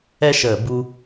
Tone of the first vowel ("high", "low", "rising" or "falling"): high